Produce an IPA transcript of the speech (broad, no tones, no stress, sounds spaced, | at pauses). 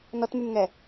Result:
n ɔ t m y m ŋ ɛ